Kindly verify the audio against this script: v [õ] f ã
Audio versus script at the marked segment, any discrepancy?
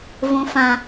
no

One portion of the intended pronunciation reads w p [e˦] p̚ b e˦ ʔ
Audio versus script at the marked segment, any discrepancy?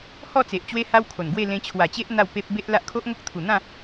no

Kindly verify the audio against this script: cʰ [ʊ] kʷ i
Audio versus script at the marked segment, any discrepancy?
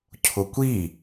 no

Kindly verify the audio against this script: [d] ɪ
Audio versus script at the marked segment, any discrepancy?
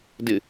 no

